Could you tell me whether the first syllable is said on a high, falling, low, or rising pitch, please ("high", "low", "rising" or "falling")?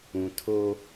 low